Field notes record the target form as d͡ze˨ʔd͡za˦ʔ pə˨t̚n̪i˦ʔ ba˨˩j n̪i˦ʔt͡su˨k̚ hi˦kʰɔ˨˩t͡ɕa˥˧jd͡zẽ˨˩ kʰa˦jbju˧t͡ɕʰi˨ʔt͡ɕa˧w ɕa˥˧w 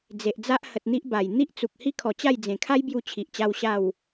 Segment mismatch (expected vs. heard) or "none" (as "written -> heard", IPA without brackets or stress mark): p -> h